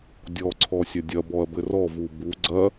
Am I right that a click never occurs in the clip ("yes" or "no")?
no